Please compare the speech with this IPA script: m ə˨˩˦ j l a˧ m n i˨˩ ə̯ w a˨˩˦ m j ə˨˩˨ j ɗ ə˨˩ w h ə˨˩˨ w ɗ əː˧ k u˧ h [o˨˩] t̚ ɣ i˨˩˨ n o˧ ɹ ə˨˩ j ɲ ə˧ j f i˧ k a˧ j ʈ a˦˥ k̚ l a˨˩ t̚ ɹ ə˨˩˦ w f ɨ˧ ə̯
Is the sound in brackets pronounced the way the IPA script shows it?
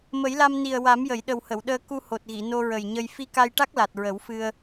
yes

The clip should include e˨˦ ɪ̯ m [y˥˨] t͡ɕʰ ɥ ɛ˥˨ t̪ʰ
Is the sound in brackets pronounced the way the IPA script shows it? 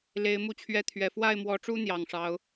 no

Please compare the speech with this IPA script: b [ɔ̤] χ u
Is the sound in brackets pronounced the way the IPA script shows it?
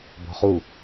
yes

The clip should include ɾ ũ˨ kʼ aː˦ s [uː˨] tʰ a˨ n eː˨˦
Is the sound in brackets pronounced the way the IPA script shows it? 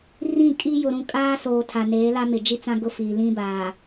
no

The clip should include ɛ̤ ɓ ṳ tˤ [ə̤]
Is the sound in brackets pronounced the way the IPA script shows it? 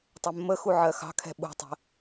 yes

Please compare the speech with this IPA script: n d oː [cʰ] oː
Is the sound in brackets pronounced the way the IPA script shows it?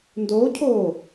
yes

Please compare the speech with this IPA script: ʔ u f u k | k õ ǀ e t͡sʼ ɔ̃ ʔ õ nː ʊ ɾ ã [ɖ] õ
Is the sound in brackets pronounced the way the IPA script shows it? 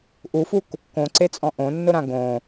no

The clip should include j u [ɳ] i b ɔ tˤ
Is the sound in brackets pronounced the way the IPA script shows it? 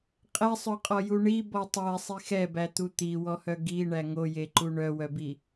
yes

